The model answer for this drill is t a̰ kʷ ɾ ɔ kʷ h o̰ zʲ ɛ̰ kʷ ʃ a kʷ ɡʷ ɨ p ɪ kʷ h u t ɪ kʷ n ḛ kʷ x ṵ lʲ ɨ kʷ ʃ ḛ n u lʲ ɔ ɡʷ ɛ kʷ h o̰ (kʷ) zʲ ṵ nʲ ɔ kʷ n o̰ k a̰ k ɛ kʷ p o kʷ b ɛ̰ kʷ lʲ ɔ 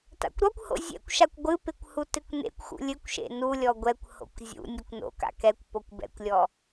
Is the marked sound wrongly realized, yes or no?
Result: no